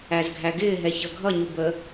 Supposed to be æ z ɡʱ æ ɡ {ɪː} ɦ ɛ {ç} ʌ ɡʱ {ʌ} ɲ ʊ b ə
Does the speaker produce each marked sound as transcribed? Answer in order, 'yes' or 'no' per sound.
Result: yes, yes, yes

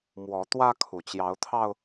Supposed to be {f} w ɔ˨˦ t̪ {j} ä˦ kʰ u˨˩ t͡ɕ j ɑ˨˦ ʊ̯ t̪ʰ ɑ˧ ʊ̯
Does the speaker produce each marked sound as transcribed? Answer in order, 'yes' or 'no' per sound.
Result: no, no

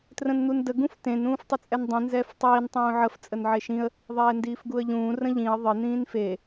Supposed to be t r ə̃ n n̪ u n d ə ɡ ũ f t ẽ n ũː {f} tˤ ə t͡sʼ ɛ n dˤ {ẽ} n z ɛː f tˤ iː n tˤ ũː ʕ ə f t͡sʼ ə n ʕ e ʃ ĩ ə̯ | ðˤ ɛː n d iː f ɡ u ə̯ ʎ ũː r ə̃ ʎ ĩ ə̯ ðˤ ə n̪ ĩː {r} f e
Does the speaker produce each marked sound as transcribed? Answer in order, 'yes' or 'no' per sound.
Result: yes, no, no

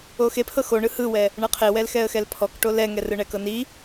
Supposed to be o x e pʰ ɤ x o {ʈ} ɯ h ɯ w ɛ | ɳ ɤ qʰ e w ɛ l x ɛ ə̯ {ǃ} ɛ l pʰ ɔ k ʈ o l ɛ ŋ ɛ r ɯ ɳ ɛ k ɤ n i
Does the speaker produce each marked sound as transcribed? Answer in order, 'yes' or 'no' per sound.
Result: no, no

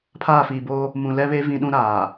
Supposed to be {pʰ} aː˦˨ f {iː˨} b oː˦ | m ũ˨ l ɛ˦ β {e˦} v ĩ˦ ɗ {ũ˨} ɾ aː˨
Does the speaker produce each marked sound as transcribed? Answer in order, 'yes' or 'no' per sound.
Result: yes, yes, yes, no

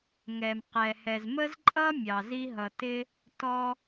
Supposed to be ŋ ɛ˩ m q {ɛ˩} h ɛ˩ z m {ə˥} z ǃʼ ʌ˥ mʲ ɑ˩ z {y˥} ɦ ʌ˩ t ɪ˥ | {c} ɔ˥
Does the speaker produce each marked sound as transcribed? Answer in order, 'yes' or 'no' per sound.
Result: yes, yes, no, no

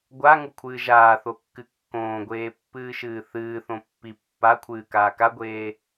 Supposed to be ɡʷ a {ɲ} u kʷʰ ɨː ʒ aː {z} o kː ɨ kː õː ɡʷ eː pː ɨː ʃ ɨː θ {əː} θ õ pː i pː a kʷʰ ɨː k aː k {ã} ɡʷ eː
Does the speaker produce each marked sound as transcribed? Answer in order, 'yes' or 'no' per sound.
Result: no, no, no, no

